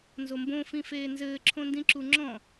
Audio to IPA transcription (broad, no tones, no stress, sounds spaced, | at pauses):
n z o m b õ f ĩ f eː n z ɘː ǁʰ õ n d ĩ ǁ u ŋ͡ǁ ɔ̃